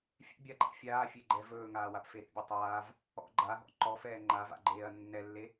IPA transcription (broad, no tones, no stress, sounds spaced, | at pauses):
fʲ ɛ̰ bʲ a ɡ͡ǃ a̰ fʲ aː fʲ e ɡ͡ǃ ɛ v ɵː ŋ aː w a p f e ɾ ḛ bʲ o tˤ aː v | ɔ̰ ɡ͡ǃ a ɦ ɔ̰ ǃ ɔ f ɛː ŋ͡ǃ a v a̰ ɡ͡ǃ eː ɐ̯ nː ɛ lː e